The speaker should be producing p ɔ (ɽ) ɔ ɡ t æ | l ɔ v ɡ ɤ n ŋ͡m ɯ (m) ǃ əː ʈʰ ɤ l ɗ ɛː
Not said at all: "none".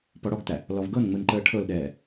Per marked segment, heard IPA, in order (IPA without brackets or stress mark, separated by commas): ɽ, n